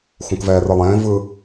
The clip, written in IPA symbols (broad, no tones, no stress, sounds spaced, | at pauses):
x ũ k v ɛː r ɯ lˠ ẽː v ɯ